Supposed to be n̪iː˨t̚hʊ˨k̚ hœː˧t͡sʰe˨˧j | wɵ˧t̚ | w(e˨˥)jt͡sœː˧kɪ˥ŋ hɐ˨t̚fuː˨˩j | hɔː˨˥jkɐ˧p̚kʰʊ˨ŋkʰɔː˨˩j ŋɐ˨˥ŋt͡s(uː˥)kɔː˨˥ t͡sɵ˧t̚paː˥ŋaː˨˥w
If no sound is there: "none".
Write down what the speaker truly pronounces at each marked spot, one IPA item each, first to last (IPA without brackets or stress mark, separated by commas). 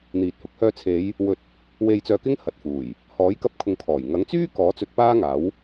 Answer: e˧, yː˥